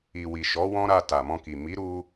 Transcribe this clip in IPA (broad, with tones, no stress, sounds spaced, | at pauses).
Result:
i˨ w i˨ ʃ ɔ˨˦ w ɔ̃˦ ɾ a˧ t a˨ m ɔ̃˧ k i˨ m i˨˦ ɾ u˧